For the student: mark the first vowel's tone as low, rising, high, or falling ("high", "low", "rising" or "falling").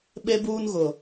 high